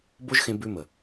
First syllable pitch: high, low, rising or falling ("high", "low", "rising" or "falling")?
high